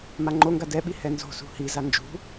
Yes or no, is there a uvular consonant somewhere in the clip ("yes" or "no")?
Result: no